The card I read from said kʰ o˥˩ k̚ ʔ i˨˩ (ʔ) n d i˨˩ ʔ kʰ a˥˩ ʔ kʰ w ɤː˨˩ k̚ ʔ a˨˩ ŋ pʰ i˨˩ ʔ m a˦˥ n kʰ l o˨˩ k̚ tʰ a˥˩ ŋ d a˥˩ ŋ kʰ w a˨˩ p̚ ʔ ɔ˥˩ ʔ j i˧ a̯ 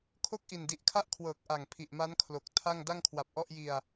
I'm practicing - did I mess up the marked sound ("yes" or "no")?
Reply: yes